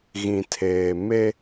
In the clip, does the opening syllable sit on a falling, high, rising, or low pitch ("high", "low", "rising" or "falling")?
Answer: low